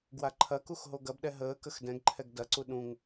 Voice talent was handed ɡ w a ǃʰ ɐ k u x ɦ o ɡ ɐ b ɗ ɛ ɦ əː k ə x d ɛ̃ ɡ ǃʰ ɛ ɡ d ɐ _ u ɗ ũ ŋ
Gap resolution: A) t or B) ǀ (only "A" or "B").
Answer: B